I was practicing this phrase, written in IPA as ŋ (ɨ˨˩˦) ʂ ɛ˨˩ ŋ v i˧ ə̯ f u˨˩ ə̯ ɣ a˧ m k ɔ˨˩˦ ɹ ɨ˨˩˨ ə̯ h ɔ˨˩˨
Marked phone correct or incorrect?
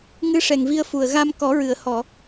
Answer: incorrect